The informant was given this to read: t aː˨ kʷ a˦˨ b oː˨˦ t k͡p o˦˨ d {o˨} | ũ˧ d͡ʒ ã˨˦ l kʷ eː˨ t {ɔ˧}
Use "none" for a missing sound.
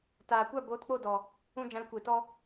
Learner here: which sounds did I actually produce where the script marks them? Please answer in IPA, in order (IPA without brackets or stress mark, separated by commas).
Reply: ɔ˨, ɔ˧